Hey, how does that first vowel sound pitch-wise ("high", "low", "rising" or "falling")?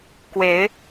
rising